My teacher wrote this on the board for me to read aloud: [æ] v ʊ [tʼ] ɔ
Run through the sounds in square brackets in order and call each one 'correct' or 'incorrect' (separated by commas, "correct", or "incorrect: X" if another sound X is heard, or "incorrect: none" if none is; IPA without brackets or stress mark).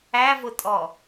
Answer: correct, correct